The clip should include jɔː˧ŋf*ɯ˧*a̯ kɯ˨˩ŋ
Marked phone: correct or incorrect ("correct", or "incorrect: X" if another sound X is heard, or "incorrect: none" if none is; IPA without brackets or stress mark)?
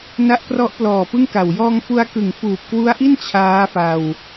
incorrect: u˧